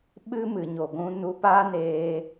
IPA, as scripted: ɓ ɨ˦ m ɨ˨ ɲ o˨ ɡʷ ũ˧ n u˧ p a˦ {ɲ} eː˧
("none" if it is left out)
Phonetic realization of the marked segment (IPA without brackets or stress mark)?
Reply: n